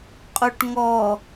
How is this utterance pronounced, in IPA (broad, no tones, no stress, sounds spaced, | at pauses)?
qʼ u ʈ ŋ ɔ